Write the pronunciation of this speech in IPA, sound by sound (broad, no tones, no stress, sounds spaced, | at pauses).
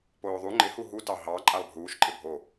p oː ðˤ u ŋ͡ǃ ɪ h u ɦ u t ɑ ɦ ɑ ǃʼ a lˠ bʱ uː ʃ ǃʼ ɪ bʱ o